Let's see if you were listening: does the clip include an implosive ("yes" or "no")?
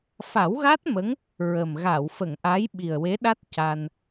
yes